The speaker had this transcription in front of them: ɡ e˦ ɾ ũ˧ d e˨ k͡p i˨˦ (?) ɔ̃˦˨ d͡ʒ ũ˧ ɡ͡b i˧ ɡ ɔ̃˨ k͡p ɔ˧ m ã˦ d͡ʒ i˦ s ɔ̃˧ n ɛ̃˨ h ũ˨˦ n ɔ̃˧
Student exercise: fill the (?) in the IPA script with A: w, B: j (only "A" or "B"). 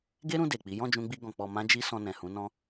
B